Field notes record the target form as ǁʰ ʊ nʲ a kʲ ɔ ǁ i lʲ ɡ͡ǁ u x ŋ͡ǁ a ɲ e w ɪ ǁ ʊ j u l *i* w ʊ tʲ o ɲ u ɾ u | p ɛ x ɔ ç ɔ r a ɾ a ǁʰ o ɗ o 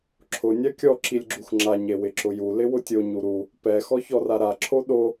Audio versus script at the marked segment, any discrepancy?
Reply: yes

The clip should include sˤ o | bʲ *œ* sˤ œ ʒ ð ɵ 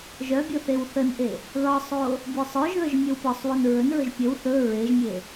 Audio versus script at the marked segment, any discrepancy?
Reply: no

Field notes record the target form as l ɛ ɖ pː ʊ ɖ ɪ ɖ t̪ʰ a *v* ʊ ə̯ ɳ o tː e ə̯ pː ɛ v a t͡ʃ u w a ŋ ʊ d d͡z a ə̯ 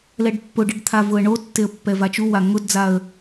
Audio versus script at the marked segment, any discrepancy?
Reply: no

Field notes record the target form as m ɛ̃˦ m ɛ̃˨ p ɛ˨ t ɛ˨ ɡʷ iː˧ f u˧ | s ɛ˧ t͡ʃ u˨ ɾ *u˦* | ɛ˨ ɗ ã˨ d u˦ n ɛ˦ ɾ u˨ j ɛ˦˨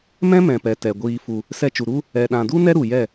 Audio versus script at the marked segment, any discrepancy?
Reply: no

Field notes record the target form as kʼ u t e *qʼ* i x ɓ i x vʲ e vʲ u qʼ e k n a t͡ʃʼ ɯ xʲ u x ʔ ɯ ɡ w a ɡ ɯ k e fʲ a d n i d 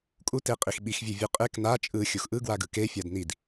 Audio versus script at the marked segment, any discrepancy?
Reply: no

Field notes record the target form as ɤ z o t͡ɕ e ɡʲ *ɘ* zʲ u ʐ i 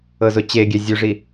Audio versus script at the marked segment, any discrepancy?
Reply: yes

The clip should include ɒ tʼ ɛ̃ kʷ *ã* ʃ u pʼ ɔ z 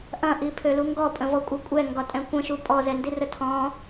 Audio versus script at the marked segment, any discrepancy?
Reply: yes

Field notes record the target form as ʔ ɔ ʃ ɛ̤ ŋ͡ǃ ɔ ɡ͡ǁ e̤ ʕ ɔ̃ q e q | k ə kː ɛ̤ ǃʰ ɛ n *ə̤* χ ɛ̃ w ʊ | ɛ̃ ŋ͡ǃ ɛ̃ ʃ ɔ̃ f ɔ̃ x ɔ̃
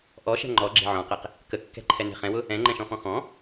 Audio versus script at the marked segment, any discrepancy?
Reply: yes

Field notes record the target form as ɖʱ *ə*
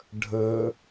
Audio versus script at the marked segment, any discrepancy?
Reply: no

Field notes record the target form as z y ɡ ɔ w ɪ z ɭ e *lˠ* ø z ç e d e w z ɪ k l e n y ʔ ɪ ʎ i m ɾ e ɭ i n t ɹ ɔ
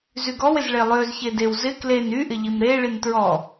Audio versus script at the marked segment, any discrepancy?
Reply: no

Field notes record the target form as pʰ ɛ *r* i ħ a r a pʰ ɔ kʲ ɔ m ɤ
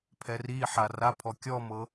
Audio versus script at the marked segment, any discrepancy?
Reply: no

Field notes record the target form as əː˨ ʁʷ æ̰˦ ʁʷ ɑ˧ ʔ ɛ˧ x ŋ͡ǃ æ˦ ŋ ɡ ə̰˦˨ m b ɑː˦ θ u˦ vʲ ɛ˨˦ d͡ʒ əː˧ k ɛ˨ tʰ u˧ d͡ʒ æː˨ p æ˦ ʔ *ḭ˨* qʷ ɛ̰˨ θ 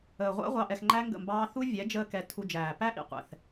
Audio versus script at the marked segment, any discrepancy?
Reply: no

